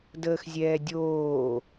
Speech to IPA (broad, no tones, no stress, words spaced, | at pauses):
dəːxzʲɛːdʲoː